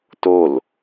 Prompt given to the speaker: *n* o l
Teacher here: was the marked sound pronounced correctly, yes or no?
no